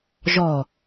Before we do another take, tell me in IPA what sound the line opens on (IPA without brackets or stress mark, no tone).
ʒ